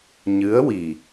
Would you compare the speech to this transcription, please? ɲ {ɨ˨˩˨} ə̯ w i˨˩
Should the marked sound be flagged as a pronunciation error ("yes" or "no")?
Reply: yes